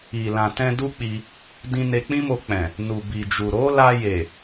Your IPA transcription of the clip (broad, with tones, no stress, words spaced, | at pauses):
i˨lã˨tɛ̃˧ du˦k͡pi˧ | dĩ˧ne˧k͡pĩ˦mo˧ k͡pɛ̃˨ | nu˨bi˨d͡ʒu˨ ɾo˨˦la˧je˨